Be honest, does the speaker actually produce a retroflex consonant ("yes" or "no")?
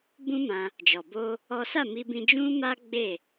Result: no